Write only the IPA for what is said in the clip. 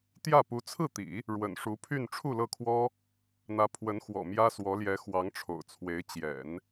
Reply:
t̪jä˥˩ pu˧˥t͡sʰɹ̩˥˩t̪ḭ˨˩˦ | ɻwə̰˨˩nʂu˧˥pʰy˥˧n ʈ͡ʂʰu˥˧lɤ˥˩kʰwɔ˥ | n̪ä˧˥ pʰwə˧˥n xwɔ̰˨˩mjä˥swɔ˧˥ljɛ˧˥ xwɑ˧˥ŋʈ͡ʂʰo̰˨˩ʊ̯t͡sʰwe˧˥ɪ̯ t͡ɕjɛ̰˨˩˦n

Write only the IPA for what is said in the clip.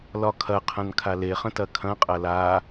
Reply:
lɒkʰɐqʰɐ̃n kʰaleχə̃ tɐkʰɐ̃qʼɐ la

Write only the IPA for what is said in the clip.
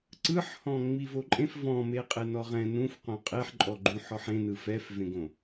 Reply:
ǀɯħhɔ̃ ŋ͡mivoǃʼẽf vɔ̃meqʼe nɔʁɛ̃ nũf qõqʼeħ ǃʼɔɡ͡ǃũħɔħ ẽnɯ fɛfvẽɡõ

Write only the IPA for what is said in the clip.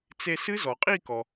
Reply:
t͡se˧ sɨ˦˥zɔ˩qʼi˥˧kɔ˩

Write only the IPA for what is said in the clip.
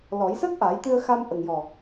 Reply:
lɔ˨˩˦j səː˦˥k̚ʔa˨˩˦j t̪ɨ˧ə̯xa˧m ʔə˨˩ŋjɔ˨˩

